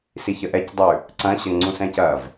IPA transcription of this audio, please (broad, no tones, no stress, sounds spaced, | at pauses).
s i ç ə ʔ ɛ c dˤ ʉ | ǀ ɐ̃ ɕ ə ŋ͡ǀ ũ s ɛ̃ c ɐ v